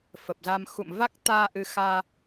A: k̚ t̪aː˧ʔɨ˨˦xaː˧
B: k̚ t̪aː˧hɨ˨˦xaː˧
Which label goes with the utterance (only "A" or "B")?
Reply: A